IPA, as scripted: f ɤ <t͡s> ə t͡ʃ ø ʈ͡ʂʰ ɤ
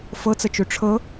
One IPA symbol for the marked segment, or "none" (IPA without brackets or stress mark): t͡s